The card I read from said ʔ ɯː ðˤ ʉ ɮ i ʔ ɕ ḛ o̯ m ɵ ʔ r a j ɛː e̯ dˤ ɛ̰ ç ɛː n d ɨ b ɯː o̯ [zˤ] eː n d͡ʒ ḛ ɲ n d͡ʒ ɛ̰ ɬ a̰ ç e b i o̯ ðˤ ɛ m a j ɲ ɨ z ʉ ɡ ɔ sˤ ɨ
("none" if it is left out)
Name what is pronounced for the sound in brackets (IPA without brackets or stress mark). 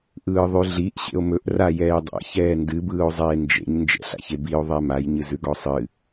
zˤ